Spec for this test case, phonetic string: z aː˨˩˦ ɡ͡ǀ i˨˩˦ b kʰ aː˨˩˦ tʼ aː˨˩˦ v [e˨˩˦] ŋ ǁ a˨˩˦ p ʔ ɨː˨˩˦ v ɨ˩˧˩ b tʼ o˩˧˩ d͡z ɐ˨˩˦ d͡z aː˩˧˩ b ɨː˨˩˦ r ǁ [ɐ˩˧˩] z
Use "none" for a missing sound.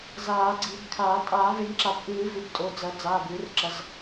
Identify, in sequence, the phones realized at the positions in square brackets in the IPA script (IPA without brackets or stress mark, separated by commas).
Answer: e˨˩˦, ɐ˩˧˩